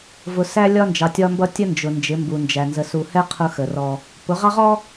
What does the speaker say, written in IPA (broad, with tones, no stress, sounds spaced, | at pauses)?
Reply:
v ʊ˨ s æ˦ lʲ ɒ˦ n d͡ʒ ɑ˨ tʲ ɒ˦ m b ʌ˦ tʲ ə˦ n d͡ʒ ʊ˨ n d͡ʒ ɪ˨˦ m b u˨ n d͡ʒ æ˨ n z ə˨ s u˨ h ɛ˦ qʰ ʊ˦ x ə˨ r ɔ˦ | p ʊ˨˦ ʁ ɑ˦ ʁ ɔ˦